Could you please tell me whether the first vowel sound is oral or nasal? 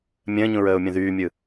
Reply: nasal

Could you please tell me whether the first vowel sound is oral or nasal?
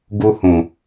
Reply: oral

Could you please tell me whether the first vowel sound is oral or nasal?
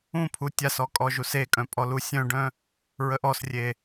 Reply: nasal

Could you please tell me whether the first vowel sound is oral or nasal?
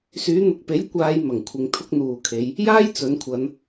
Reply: oral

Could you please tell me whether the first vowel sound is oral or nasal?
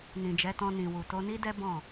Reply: nasal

